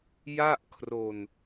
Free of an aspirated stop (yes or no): no